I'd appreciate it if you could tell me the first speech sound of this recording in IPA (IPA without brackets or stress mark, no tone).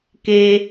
k